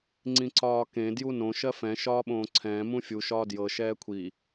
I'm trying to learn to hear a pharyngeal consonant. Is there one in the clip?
no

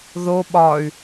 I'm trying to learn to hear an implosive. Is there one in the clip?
yes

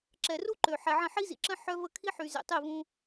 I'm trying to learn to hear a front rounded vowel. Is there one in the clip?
yes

